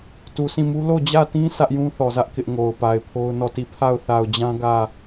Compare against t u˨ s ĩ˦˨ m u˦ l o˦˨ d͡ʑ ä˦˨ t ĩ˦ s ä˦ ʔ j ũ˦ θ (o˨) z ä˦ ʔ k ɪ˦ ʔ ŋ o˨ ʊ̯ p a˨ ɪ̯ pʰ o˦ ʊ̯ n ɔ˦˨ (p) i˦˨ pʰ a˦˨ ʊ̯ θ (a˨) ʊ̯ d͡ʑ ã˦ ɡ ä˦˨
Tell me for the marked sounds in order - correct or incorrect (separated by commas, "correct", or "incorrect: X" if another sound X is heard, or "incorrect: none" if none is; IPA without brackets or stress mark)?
incorrect: ɔ˨, incorrect: t, correct